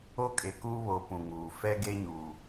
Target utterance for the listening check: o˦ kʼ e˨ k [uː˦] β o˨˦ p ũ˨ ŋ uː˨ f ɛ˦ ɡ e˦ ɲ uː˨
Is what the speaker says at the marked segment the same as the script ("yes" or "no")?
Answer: yes